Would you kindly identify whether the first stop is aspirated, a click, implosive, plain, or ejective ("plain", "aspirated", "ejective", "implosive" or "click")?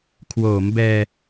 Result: aspirated